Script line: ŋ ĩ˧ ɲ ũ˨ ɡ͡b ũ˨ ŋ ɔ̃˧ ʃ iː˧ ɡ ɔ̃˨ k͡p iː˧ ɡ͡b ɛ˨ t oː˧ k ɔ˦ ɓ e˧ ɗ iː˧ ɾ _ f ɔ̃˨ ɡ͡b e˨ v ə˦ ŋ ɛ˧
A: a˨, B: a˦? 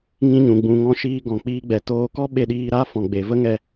B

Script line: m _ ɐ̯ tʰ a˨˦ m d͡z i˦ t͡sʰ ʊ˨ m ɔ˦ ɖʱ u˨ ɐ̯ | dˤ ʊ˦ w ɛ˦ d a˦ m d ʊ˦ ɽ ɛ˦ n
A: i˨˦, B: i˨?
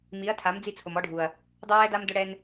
A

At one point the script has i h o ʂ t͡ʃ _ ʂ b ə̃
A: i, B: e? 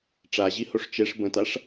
B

